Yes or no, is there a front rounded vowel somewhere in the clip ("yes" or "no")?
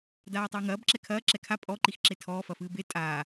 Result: no